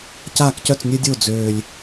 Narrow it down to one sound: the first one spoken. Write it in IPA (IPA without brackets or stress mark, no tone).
c